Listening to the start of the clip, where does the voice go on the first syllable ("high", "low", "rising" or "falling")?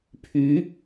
rising